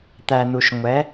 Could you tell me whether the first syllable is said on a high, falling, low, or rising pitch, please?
low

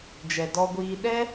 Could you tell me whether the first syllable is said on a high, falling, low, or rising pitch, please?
low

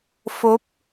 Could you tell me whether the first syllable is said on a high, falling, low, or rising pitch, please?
rising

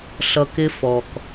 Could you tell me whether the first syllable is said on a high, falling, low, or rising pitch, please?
low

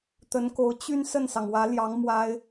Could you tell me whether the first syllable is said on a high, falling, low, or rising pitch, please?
rising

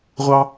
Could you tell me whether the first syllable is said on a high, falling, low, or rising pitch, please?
high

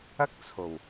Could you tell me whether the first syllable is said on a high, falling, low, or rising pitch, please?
high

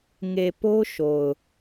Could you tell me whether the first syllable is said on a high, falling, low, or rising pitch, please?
low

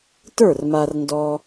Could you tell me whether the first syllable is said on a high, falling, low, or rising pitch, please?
falling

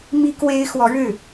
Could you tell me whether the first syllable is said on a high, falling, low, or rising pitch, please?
high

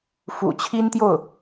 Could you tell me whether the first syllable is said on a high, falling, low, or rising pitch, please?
low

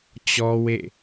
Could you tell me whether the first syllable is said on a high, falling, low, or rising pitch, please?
high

